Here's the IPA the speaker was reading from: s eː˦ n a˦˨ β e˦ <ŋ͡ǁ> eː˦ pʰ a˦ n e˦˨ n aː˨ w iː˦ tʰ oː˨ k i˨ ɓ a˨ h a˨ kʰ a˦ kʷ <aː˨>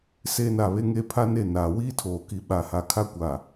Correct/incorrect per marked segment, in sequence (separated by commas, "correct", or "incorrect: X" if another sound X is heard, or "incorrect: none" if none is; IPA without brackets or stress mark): incorrect: ŋ, correct